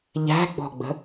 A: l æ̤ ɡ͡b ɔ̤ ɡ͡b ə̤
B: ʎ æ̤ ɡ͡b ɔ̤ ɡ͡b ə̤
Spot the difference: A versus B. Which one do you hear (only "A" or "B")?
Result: B